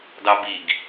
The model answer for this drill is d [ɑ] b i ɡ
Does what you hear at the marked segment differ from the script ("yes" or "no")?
no